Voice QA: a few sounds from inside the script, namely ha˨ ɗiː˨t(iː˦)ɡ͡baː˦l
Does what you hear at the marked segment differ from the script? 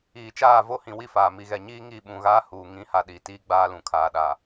no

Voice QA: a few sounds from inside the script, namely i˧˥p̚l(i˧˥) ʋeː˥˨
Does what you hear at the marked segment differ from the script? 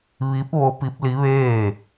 no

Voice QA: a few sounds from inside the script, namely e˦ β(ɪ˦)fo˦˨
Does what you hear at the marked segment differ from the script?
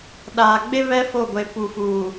yes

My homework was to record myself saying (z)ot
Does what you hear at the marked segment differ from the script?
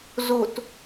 no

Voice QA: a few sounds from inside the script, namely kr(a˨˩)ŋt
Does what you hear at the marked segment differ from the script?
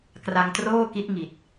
yes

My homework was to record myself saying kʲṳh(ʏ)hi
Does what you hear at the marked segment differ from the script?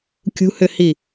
no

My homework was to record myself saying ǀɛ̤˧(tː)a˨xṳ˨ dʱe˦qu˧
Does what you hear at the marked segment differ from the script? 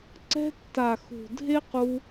no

